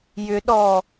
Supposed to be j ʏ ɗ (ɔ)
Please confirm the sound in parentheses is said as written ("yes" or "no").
yes